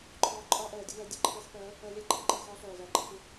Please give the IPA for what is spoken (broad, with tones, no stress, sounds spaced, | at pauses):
ǃʰ ɔː˧ ǃʼ ɒː˦ ʔ ɜː˨ dʲ ə˦ w ɜ˨˦ dʲ ə˦˨ ǃʰ ɪː˧ χ p ɜː˨˦ | ɜ˧ lʲ æ˦ ǃʰ ə˦ ǃ ɜ˨ χ ɒː˦ ɬ ɜː˨ v æ˨ ɡ͡ǃ ə˧ x ɪ˧